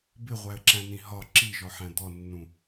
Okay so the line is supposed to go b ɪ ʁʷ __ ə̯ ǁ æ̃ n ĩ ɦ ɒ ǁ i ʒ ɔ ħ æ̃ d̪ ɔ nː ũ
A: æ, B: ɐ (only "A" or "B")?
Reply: A